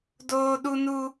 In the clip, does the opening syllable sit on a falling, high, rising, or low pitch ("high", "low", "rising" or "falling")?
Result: high